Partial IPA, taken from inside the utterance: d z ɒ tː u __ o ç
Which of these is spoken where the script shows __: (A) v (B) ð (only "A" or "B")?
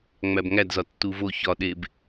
A